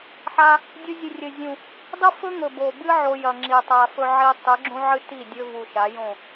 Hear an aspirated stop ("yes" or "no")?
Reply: no